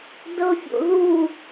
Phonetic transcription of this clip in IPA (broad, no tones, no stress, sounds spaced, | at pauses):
d ɤ fʲ o̰ ð u